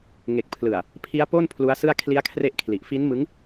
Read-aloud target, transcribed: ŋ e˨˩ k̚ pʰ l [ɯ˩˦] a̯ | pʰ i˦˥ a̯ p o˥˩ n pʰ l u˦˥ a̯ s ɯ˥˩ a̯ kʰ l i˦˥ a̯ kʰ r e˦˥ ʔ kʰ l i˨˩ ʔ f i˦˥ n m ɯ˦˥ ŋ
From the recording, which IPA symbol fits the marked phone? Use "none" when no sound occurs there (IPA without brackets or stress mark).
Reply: ɯ˨˩